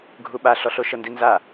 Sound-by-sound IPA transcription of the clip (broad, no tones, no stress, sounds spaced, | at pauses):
ɡʱ u ɓ a ɬ ɔ ɬ o ʃ ɤ n d i n z a